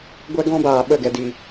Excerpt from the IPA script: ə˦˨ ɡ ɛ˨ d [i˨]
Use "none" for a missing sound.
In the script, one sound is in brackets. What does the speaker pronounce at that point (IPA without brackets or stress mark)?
i˨